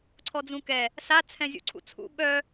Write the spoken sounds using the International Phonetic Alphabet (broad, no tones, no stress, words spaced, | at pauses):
ǀʰɔd͡zũkɛ | sa t͡sʰɛ̃zʲṵǀʰṵt͡sʰṵ ɓœ